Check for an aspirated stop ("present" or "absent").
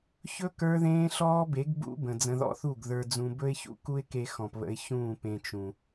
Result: absent